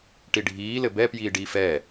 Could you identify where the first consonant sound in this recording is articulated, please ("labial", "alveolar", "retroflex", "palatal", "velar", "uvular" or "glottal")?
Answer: retroflex